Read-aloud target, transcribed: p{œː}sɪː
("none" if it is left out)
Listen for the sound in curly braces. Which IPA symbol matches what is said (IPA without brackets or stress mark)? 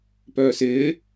œː